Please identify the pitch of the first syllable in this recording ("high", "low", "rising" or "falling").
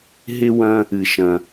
high